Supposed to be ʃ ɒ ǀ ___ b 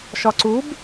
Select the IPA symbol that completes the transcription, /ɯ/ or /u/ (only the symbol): u